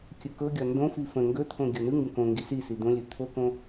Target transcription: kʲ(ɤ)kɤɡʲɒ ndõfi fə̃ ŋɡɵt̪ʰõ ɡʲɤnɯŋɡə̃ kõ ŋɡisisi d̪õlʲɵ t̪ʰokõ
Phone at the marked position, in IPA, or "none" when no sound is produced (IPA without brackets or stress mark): ɵ